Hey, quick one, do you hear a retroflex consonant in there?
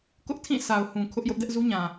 no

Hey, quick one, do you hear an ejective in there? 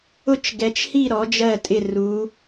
yes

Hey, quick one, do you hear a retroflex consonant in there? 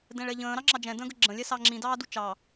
yes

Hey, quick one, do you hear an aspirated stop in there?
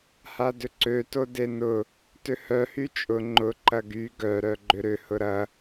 no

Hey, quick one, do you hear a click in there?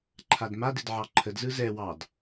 yes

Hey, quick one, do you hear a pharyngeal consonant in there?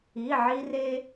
yes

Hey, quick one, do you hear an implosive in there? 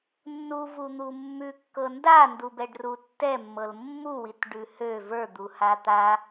no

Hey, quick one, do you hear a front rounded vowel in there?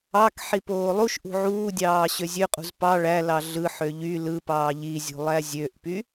yes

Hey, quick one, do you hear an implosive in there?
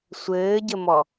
no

